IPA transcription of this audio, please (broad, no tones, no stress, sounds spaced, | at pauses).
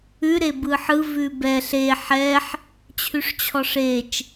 ʉ ɾ e b ɯ ħ ɯ v ʉ b ɛ ɬ e ħ ɛ ħ | t͡ɕʰ ʉ ʂ t͡ɕʰ ɔ ʂ e t͡ʃ